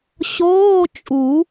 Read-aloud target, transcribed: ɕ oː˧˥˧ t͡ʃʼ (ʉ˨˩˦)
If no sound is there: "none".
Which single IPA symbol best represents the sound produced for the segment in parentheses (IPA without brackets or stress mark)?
u˨˩˦